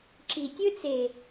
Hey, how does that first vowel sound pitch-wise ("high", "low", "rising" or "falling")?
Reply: low